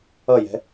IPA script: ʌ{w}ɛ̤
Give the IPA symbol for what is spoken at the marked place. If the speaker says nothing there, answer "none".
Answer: j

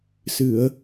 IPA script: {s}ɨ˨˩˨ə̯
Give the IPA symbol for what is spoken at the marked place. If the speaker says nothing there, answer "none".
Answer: s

